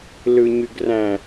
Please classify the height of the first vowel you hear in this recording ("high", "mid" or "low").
high